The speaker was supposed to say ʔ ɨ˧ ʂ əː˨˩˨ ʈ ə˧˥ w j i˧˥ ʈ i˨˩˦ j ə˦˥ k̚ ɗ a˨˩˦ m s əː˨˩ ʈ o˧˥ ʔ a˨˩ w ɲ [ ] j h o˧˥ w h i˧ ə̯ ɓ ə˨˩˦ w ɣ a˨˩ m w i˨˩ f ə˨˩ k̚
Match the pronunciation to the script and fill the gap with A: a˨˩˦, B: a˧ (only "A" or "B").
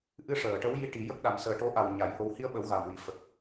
A